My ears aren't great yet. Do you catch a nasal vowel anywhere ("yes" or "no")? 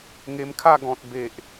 yes